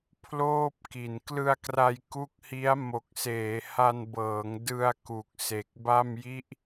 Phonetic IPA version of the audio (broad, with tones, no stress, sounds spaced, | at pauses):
pʰ l oː˥˩ p̚ k i˨˩ n k l ɯ˧ a̯ k r a˧ j k u˦˥ k̚ h i˦˥ a̯ m o˨˩ k̚ s eː˩˦ h a˧ n b ɤː˩˦ ŋ d ɯ˧ a̯ k u˨˩ k̚ s e˨˩ k̚ b a˥˩ m j i˦˥ ʔ